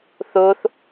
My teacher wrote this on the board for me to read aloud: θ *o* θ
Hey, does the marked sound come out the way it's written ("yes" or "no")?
yes